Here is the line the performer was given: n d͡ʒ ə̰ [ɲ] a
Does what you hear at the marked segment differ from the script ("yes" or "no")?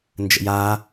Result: yes